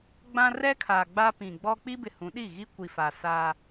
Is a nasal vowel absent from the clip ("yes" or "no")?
no